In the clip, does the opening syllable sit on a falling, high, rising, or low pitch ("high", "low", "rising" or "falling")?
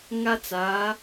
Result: high